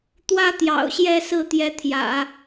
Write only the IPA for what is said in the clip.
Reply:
t̪wä˥t̪jɑ̰˨˩ʊ̯ɕjɛ˥˧ sɹ̩˥˩t̪jɛ˧˥t̪ʰjä̰˨˩˦

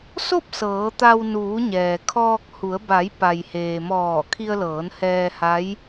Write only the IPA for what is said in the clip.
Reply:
so˥˨p̚ sɤː˩˧t̪a˧w nuː˩˧ɲɛː˩ kʰɔː˧k̚ hu˩˧ə̯ ba˩˧j pa˩jheː˩ mɔː˧˩ kʰi˧ə̯lɤː˩˧nhɛː˧ ha˧˥j

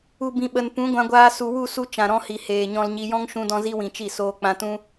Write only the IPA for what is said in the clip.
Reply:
u˨bĩ˨ ɓə˨n pũ˨˦ɡʷã˧ɡʷaː˧ su˨wu˦˨ su˧ t͡ʃã˨ɾɔ̃˧hi˨ heː˨ɲɔ̃˧lɲi˧ jɔ̃˦ŋʃũ˧dɔ̃˧ zi˦wĩ˨t͡ʃi˦˨ soː˧k͡pã˧tũ˦

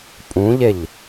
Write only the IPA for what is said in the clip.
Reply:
pʼũʎeʎ

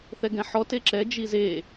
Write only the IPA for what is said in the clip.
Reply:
θɛɡɛ̃ħɔ teǁɛ d͡ʒize

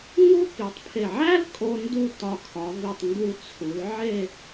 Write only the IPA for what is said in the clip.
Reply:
ŋu˥ki˩˧tˤpʰe˧˩ ʕæ˥lkʼo˧ ndu˥˧ tɒ˧˩kʰɒ˩˧ vi˧˩tˤ ŋɡu˥˧ t͡sʰu˩˧l ʕe˥˧

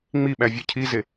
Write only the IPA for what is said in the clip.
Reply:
ŋ͡miɓævʲo cʰize

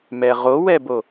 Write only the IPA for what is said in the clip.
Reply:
mɛʁowɛbo

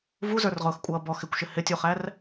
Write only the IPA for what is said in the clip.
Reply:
vuzə˞rʁʊːxkʷʼʌː bɔx ɪkʷʃɪ hɪtʲuχær

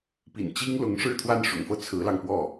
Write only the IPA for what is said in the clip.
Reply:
pḭ˨˩nt͡ɕi˥ŋlʊ˧˥ŋ ʂɻ̩˥˧t̪ʰwa˥˩nʂʊ̰˨˩ŋfɤ˥˩ t͡sʰɹ̩˧˥lɑ˧ŋpwɔ˥˩

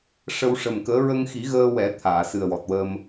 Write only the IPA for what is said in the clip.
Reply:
ʂə˧wʂə˨˩mkəː˧˥ ɹə˧ŋxi˨˩˦ ɣəː˧wɛ˨˩˦ t̪ʰaː˨˩˨sɨ˨˩ə̯wɔ˨˩t̚ wə˧m

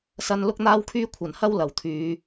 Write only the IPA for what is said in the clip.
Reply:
sɐ˧nlʊ˥k̚n̪aː˥wkʰyː˥ kʷʰɐ˨˩nhɐ˥w lɐ˨˩wt̪ʰyː˨˧

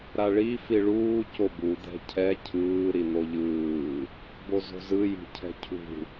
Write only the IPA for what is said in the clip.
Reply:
ɾaɭi fiɭuː cobu d̪ɛ̤cʰɛ cʰɯː ɾin̪oʎɯː | bozo̤zɯ ji̤cʰɛ̤cʰṳ

